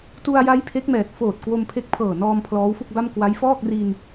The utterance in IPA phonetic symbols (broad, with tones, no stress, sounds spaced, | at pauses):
t u˧ a̯ j a˦˥ j pʰ e˦˥ k̚ m ɛː˨˩ t̚ f oː˨˩ t̚ k w o˧ m pʰ e˦˥ k̚ pʰ ɤː˨˩ n ɔː˧ m pʰ l ɔː˦˥ w f u˥˩ k̚ b a˥˩ m k w a˦˥ j f ɔː˥˩ k̚ r i˧ n